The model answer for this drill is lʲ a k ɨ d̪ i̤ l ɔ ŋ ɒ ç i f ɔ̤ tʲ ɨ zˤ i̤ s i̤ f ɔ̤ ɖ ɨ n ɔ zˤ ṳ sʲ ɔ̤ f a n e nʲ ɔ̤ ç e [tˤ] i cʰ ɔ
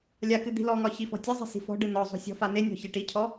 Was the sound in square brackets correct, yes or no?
no